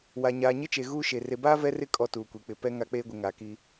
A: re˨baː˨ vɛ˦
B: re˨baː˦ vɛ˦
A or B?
B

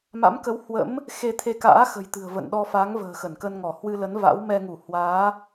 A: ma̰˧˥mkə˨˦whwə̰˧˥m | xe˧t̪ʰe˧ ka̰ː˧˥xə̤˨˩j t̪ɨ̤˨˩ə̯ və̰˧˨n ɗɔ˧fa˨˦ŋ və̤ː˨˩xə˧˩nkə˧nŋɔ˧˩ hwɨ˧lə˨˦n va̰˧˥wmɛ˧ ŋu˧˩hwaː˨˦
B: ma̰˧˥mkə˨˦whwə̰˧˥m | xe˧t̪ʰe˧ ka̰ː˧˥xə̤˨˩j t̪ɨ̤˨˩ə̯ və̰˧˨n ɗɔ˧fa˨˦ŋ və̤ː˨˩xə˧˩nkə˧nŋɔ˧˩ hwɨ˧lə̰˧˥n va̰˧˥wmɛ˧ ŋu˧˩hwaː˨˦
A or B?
A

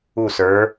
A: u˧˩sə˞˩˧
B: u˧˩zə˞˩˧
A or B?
A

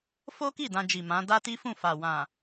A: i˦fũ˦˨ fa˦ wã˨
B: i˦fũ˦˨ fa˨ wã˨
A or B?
B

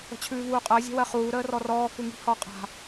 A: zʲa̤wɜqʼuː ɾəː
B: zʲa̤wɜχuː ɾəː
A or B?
B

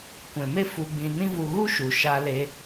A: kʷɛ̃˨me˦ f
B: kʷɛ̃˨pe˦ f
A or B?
A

